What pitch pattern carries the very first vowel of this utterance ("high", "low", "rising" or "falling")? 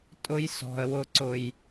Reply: high